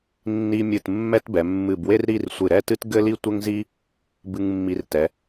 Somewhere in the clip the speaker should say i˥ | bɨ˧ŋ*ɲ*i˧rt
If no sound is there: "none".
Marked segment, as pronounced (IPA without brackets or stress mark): mː